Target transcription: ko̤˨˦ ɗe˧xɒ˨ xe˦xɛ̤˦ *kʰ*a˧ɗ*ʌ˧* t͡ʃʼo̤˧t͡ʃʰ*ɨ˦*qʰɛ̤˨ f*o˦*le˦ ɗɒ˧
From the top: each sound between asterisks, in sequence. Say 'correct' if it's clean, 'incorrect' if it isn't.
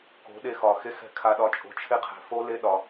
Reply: correct, incorrect: ɒ˧, incorrect: e˦, correct

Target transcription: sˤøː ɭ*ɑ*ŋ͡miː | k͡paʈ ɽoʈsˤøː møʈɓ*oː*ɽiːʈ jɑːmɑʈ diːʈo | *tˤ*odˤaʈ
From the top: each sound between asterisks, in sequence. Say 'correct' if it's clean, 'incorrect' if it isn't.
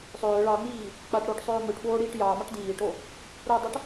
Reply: correct, correct, incorrect: ɾ

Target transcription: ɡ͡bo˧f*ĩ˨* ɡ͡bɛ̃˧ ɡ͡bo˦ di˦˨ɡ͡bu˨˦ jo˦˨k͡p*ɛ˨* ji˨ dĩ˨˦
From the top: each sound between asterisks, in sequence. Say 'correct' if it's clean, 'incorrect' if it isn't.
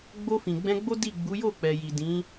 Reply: correct, correct

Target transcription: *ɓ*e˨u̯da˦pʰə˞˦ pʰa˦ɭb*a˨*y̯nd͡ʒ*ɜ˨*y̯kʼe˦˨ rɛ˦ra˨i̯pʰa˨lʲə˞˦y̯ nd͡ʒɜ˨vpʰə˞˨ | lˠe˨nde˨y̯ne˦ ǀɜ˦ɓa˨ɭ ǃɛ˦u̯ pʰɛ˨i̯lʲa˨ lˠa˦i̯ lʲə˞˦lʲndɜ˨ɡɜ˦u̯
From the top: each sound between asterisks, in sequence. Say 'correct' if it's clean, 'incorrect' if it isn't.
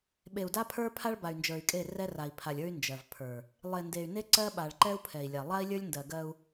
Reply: correct, correct, incorrect: ə˞˨

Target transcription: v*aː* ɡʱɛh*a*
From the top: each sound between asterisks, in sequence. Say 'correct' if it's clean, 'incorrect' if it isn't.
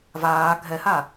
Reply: correct, correct

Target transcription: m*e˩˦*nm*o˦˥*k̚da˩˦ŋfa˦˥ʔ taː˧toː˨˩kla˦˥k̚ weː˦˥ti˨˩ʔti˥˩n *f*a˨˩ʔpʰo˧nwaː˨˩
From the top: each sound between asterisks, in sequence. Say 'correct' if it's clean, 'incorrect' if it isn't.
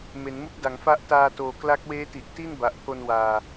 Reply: correct, incorrect: u˦˥, incorrect: b

